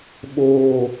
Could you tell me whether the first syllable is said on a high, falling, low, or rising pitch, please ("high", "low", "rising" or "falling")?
low